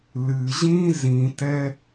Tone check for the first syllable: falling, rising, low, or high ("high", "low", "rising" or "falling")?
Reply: low